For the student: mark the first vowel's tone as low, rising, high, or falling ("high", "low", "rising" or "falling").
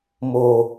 low